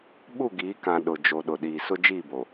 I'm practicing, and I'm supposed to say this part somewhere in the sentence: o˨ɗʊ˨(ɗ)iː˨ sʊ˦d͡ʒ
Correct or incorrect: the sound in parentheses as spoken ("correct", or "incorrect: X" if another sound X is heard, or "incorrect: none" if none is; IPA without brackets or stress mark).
correct